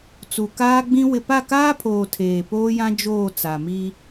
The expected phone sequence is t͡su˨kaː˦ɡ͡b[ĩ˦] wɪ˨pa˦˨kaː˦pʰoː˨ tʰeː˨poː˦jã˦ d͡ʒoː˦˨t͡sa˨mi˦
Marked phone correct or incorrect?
correct